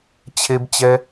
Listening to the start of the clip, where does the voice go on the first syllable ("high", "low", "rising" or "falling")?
high